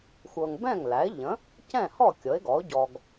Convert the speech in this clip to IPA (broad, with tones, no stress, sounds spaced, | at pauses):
xʷ ɤ˨ ŋ b ɛ̃˥˩ ŋ l æ˩˥ ɪ̯ ʎ ə̃˩˥ | c ɛ̃˥˩ h ɔ˥˩ kʲ ɤ˩˥ ɪ̯ ɡ ɔ˩˥ ʊ̯ ɟ ɔ˨ ɡ